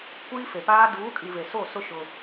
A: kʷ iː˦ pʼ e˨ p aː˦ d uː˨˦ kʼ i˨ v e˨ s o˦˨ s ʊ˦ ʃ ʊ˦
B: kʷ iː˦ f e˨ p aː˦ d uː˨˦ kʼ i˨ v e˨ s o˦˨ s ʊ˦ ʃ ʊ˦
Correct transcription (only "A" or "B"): B